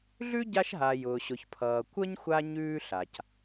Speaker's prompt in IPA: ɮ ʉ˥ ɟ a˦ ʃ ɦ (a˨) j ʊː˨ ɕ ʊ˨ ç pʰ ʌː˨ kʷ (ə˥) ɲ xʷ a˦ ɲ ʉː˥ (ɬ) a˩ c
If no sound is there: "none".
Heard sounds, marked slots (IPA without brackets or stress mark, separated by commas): a˨, ə˥, ɬ